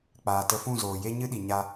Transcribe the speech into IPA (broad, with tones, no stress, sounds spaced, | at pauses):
k͡p aː˨ t ə˧ f ũ˦˨ z oː˨ j e˦ ɲ ɨ˦ ɗ i˨ ɲ a˧